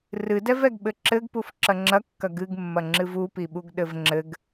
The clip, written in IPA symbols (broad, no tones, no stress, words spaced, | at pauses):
rɨdɛvɛɡ ɓɘǁɘɡpuf ǁɐŋ͡ǁɐkːɐ ɡɨɡmːɐ ŋ͡ǁɨvupiɓuɡ ɗɘvŋ͡ǁɘɡ